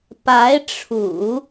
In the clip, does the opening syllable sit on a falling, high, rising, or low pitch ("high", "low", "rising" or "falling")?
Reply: rising